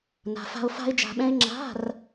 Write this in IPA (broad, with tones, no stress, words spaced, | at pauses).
na̤˧fa̤˥o̯ fa̤˥e̯d͡ʒa̤˧ɓɛ̃˥e̯ ŋ͡ǁa̤˧˥˧r